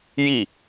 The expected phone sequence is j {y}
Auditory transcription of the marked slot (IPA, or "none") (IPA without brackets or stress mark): i